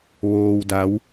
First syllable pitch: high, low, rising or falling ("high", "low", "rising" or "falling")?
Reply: low